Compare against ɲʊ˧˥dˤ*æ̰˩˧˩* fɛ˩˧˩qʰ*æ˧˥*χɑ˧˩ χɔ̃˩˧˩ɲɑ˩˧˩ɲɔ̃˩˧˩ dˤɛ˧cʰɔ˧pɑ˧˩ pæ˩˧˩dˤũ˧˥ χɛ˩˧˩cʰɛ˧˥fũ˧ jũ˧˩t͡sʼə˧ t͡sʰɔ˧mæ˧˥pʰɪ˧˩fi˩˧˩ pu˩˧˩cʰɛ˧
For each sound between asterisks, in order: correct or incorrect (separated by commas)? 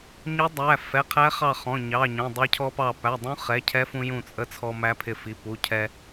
incorrect, correct